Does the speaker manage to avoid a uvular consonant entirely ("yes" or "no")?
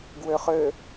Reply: no